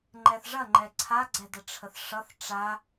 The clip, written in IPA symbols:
ŋ͡ǃ ɛ θ ʐ ɐ ŋ͡ǃ ɛ ǀʰ a ɡ͡ǀ ɛ d ə ʈ͡ʂʰ ə θ ʂ ʌ θ ʈ͡ʂ a

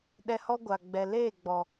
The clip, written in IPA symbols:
ɗ ɛ˧ h ɔ˦ ɡʷ a˨ ɡ͡b ɛ˨ l eː˦˨ ɡ͡b ɔ˨

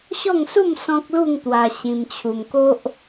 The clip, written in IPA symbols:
ɕ ɔ˥˧ ŋ s u˥˧ m s ɔ̃˦ k̚ l u˥˧ ŋ t̪ w a˧ ɕ ĩ˧ m t͡ɕʰ u˧ m k o˦ ʔ

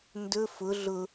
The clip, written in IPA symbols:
n d ɵ f ʊ ɮ ʊ

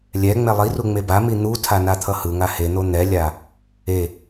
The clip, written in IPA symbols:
lʲ ɛ ŋ͡m ɛ lˠ i r u ŋ͡m e b a m i n̪ u tʰ a n a t̪ʰ ʌ h ɯ ŋ a h e n̪ o n̪ ɛ lʲ a | e

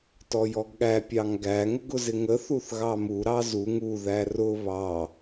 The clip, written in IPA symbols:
t ɔ j ɔ ɡ ɠ æ pʲ ɑ ŋ ɡ æ ŋ ʊ ɡ ʊ z ɪ ŋ ə θ u θ ɣ ɑ m u ɾ ɑ z u ŋ u ð æ r ʊ β ɑ

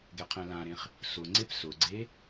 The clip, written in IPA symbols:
ɡ ɛ qʰ ɛ̃ l ã ɾ ẽ χ | s ʊ ŋ͡ǀ e p s ʊ ɡ͡ǀ e

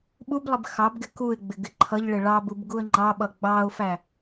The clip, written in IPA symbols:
ɓ u b lˠ ɪ b x ɑ b ɡ ɪ k u ɪ̯ ɡ͡b ɪ ɡ ɪ ǃʰ ʌ ʎ ɭ ɪ ɭ ɑ b u b ɡ u ə̯ ŋ͡ǃ ɑ ɓ ʌ ɡ͡b ɑ ʊ̯ f æ

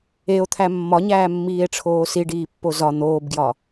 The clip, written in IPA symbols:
e o̯ t̪ʰ æ mː ɒ ɲ æː mː iː e̯ ʈ͡ʂʰ oː s i ɖ iː pː o z ɒ n̪ oː b ɡ j ɒ

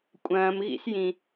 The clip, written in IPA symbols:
kʷʼ ɐ̃ː m ɣ ḭ s j ĩ

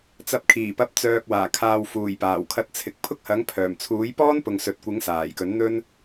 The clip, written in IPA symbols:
t͡s ɐ˧ p̚ kʰ iː˨˩ p ɐ˨˥ p̚ t͡s œː˨ k̚ w aː˨˩ kʰ aː˨ w f uː˨˩ j p aː˨˩ w kʰ ɐ˧ t̚ t͡sʰ ɪ˨˥ k̚ pʰ ʊ˥ k̚ h ɐ˨˥ ŋ pʰ œː˨˩ m t͡sʰ uː˨˥ j p ɔː˥ n p ʊ˨ ŋ s ɵ˨ t̚ kʷ ɪ˨˥ ŋ s aː˨˩ j k ɵ˨˥ n n̪ ɵ˥ n

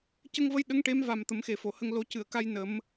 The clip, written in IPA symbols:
c ə˧ ŋ v ə˧˥ j ɗ ə˧˥ ŋ ʈ e˧˥ m v a˨˩ m t̪ ə˨˩˦ m x e˨˩ f o˨˩˨ h ə˧ ŋ l o˨˩˦ c ɨ˨˩˨ ə̯ k a˧ j n ə˨˩˦ m

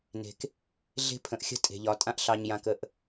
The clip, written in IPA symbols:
n e̤˨ k | ɮ e̤˦ pʰ ə̃˨ ʔ xʲ ə̤˦ tʼ e̤˨ ʎ ɒ˨˦ tʼ ã˦ ʔ ɬ ɑ˧ ɲ j ã˧ k ə˧ ʔ

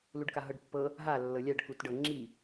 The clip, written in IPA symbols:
l u ɖ k a ɦ ɤ ɖ pː ɤ | ɦ a lː ɤ lʲ a ɖ k u t ɖ ɤ ŋ͡ǁ i

